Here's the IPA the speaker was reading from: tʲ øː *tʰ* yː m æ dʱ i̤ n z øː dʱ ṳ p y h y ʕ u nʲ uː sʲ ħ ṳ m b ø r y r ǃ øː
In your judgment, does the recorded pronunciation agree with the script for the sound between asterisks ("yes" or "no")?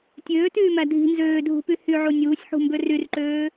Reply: no